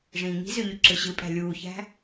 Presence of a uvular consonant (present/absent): absent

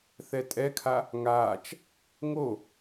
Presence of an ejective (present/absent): present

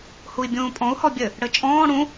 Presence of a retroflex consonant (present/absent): present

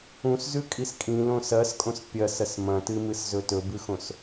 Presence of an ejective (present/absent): present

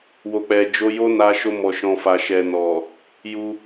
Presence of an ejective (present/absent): absent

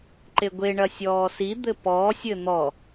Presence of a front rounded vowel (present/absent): absent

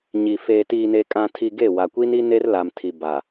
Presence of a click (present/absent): absent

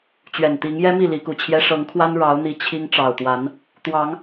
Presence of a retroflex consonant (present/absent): present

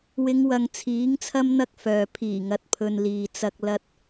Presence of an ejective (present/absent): absent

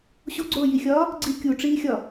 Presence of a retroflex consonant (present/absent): present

